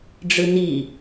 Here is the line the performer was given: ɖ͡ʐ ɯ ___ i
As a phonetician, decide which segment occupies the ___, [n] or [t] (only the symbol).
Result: n